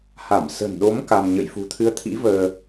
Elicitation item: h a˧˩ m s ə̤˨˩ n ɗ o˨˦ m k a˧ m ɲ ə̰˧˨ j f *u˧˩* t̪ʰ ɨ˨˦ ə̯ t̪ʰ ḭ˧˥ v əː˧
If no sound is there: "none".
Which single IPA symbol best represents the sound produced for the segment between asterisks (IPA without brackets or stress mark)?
ṳ˨˩